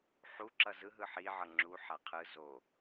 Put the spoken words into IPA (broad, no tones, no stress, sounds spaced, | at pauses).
ħ u ǁ ʌ z ɯ ɦ ɯ ħ i ʕ ʌ ŋ͡ǁ u ħ a qʰ ɯ z o